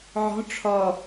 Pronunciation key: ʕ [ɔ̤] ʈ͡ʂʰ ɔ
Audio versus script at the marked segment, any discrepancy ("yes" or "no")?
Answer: no